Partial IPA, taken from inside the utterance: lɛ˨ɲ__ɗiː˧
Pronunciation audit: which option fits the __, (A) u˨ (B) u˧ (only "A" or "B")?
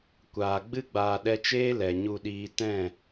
B